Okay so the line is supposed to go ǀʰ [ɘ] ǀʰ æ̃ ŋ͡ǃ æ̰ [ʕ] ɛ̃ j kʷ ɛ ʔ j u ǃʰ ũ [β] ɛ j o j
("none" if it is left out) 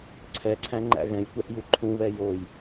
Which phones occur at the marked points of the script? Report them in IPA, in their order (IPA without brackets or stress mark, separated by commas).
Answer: ɛ, ɣ, β